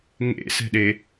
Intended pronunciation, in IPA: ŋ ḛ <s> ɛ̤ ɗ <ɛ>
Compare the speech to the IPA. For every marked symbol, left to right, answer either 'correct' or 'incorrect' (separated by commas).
correct, incorrect